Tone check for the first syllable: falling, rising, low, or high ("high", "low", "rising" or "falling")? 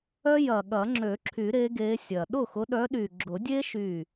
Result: high